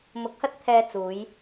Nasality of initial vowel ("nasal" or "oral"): oral